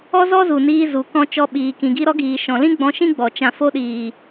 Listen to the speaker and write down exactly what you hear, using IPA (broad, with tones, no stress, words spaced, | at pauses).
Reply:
ɔ˦zɔ˦zu˨niː˧ zu˨kɔ̃˧ t͡ʃɔ˧ɓiː˨ kĩ˨ɡi˧ɾɔ˧ɡiː˨ ʃɔ̃˨lĩ˦ ɡ͡bɔ̃˧ʃĩ˦ ɡ͡bɔ˨ t͡ʃã˨fo˧ɗiː˨